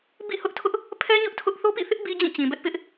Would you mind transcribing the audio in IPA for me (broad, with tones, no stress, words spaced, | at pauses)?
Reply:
bḭ˦˨hʊ˦ʔtʰʊ˦ʔ | pʰɛ˦ ɲʊ˦ʔtʰʊ˦ʔ θo˦pḭ˦˨θɪ˦ʔ bi˦d͡ʑĩ˦˨t͡ɕĩ˨bɛ˦ʔ pɪ˦ʔ